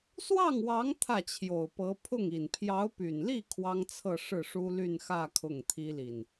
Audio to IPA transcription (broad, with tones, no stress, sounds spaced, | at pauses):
s w ɑ˥˩ ŋ w ɑ˧˥ ŋ t̪ʰ ä˥˩ t͡ɕʰ j o˨˩ ʊ̯ p ɤ˧˥ pʰ ʊ˥˩ ŋ i˨˩ n pʰ j ɑ˧˥ ʊ̯ p y˨˩ n l i˥˩ kʰ w ɑ˥ ŋ t͡sʰ ɤ˥˧ ʂ ɻ̩˥˩ ʂ u˥ l y˥˧ n x ä˥˧ kʰ ʊ˥˩ ŋ t̪ʰ i˥ l i˨ n